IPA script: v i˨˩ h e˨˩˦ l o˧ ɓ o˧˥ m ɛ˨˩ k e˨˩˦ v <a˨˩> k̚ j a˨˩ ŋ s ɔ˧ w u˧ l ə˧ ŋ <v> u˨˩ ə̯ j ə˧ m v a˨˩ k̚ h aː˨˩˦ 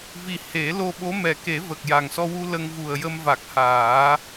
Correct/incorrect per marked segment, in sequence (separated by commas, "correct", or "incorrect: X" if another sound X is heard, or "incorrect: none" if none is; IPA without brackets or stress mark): incorrect: ə˨˩, correct